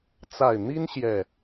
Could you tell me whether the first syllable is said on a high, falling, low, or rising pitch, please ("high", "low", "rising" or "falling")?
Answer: low